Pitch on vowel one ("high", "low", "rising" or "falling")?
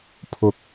low